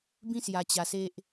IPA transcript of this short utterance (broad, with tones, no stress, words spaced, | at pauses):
bĩ˦sja˧t͡ɕa˧se˦ʔ